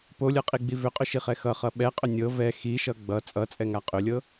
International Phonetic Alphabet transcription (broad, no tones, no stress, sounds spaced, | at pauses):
p o lʲ ɤ qʼ i ɡ͡b i v ʏ qʼ ʏ ʃ i χ ɛ x ʌ χ ʌ ɓ ɛ qʼ ʏ nʲ ɤ v ɛ x i ʃ ʌ ɡ͡b ʌ t͡sʼ ʌ t͡sʼ ɛ ŋ a qʼ ʏ lʲ ɤ